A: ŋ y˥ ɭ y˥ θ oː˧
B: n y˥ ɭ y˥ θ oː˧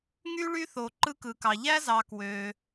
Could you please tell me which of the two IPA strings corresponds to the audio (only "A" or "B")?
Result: A